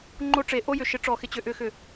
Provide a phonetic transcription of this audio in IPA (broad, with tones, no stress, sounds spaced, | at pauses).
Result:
ŋ͡ǃ o˧ ʈ͡ʂ e˨ ʔ o˧ j ʏ˨ ʃ ɪ˨˦ ʈ͡ʂ ɔ˨ x ɪ˨ t͡ɕ ʏ˨ ʔ ʏ˨ x ʏ˨